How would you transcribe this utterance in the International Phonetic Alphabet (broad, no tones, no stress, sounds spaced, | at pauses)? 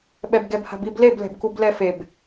ɓ ɛ b ɡ ɛ b h a̤ b i b l e b l ɛ̤ b k u b l ɛ f e b